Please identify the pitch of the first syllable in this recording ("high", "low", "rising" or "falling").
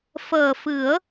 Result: low